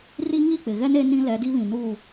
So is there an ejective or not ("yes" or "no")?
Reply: no